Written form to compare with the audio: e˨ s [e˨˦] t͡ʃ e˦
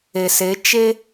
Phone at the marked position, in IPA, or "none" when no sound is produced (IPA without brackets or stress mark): e˨˦